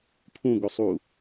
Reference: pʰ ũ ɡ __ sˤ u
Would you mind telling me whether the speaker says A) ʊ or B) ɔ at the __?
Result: A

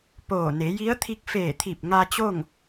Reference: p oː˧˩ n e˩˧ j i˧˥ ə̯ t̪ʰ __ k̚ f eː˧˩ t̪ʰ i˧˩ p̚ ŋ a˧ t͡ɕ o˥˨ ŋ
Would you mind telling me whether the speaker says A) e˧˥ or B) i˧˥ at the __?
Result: B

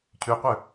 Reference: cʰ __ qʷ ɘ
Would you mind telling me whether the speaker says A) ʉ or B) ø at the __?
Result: A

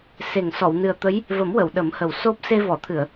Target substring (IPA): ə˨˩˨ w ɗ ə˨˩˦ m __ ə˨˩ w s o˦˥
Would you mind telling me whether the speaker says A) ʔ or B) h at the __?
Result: B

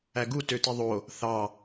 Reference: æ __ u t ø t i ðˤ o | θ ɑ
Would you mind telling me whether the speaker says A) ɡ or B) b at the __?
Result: A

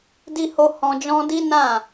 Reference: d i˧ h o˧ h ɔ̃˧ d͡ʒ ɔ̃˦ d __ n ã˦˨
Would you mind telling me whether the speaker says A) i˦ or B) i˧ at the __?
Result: A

